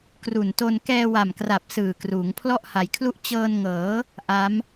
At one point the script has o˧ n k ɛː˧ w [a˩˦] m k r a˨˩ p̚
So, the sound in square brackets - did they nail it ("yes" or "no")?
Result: no